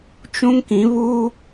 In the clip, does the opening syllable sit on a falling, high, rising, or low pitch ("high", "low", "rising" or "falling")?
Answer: high